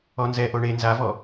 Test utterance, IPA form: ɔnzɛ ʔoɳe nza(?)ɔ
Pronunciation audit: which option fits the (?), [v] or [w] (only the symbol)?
v